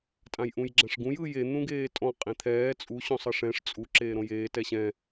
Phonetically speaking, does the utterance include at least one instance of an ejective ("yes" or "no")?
yes